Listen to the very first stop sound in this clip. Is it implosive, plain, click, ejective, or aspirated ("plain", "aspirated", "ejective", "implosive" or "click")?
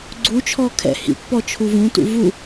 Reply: click